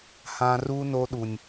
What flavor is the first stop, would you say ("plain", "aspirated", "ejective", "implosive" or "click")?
implosive